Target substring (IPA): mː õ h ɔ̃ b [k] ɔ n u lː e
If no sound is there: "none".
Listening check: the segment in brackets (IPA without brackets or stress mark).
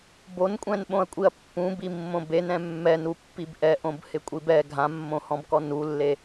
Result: k